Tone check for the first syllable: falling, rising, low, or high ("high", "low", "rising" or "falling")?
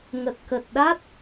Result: low